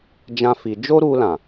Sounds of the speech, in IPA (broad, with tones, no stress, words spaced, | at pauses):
d͡ʒã˦fi˧ d͡ʒo˦ɾu˧lã˨